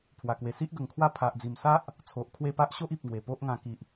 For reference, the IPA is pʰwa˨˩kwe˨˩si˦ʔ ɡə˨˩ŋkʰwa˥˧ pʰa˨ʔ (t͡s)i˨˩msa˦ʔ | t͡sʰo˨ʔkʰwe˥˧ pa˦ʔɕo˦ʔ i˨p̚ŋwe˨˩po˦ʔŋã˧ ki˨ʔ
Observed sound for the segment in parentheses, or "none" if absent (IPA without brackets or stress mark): d͡z